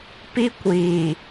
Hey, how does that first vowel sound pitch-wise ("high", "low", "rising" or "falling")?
high